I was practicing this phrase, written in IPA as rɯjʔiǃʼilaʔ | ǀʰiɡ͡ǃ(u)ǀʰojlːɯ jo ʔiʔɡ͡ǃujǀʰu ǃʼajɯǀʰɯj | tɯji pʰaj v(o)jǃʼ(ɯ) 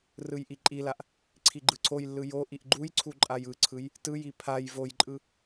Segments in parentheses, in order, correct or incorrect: incorrect, correct, correct

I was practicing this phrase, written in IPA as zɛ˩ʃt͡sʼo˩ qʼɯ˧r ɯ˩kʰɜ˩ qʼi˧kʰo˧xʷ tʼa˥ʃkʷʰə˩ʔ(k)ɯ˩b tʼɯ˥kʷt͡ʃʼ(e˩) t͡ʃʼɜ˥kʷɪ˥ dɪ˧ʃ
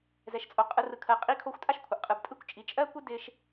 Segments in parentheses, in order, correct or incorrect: incorrect, incorrect

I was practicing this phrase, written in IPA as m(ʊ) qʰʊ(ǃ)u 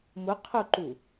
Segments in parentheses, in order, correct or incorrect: correct, correct

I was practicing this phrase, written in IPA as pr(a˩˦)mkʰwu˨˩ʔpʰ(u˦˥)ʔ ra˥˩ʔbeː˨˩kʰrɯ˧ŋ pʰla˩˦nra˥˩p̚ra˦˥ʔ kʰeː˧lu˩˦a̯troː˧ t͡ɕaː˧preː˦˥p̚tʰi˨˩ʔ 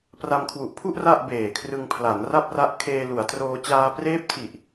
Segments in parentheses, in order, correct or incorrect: incorrect, incorrect

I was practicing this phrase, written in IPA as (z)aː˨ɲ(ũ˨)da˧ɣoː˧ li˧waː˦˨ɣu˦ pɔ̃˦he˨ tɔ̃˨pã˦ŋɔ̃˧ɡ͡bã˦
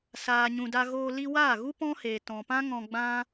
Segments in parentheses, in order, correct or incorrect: incorrect, correct

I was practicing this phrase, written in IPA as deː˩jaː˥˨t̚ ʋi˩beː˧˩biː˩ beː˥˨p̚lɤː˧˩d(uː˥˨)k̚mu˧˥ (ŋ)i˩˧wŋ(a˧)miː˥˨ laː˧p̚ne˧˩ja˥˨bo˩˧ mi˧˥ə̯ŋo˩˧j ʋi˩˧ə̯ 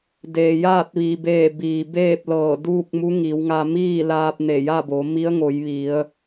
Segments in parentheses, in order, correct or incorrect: correct, correct, correct

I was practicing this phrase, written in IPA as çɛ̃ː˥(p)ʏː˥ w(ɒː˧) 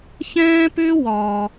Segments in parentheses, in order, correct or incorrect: correct, incorrect

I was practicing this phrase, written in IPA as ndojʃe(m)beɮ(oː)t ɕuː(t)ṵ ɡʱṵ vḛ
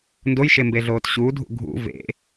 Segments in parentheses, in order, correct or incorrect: correct, correct, incorrect

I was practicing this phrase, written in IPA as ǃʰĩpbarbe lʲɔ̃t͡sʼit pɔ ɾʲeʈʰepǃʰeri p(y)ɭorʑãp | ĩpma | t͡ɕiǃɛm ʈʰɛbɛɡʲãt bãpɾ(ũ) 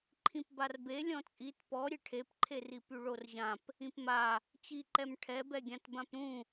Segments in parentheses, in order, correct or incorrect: correct, correct

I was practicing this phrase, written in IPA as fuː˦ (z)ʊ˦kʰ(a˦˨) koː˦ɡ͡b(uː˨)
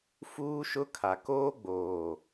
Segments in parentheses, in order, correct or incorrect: incorrect, incorrect, incorrect

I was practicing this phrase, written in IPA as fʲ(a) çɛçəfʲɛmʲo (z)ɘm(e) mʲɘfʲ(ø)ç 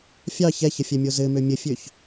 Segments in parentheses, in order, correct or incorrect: incorrect, correct, incorrect, correct

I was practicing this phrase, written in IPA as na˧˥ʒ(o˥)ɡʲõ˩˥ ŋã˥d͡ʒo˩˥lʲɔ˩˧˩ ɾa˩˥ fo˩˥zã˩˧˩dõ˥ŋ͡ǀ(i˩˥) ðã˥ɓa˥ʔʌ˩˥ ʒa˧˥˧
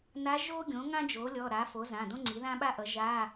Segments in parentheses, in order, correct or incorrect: correct, correct

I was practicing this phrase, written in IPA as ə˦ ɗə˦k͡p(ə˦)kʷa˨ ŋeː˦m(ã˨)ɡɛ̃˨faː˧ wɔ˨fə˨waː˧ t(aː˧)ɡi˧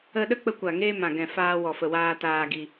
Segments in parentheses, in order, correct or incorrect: incorrect, correct, correct

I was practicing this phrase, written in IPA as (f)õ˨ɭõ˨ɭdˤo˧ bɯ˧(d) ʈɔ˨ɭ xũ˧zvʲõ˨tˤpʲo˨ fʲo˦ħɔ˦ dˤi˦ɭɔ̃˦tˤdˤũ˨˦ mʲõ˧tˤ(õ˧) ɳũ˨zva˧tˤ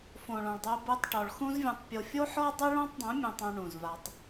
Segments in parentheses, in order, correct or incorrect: correct, incorrect, correct

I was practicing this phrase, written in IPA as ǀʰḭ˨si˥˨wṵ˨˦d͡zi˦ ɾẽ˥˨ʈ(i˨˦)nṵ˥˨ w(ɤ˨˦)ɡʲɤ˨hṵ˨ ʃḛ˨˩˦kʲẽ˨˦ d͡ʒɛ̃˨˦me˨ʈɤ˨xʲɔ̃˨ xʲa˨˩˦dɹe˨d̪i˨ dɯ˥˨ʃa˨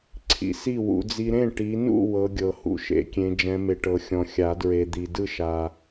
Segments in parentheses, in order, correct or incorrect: correct, correct

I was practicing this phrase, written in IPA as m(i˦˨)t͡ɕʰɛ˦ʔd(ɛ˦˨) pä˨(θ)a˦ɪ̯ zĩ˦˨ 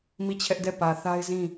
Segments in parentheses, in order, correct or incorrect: correct, correct, correct

